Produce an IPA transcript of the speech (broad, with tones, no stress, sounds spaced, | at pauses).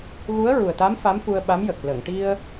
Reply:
ɣ u˧˥ ə̯ ɹ u˨˩ ə̯ t̪ a˧˥ m f a˧˥ m f u˧ ə̯ ɓ a˧˥ m j ə˨˩ k̚ l ə˨˩˨ ŋ ʈ i˧ ə̯